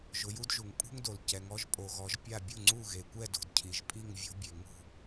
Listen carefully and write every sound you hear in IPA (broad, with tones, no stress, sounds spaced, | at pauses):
ʒ ʊ˨˦ j u˦ d ʒ u˨ ŋ pʼ ṳ˦ ŋ d o˨ l c ɛ˨˦ ŋ ɔ˦ ʒ pʼ o˨ ɣ ɔ˨˦ ʒ pʲ a˥˨ bʲ u˥˨ ŋ͡ǀ u˥˨ ɣ e˨ kʷ ɛ˥˨ d o̤˨ d cʰ i˨ ʒ pʼ i˥˨ ŋ vʲ o̤˦ bʲ e˨ ŋ ṳ˥˨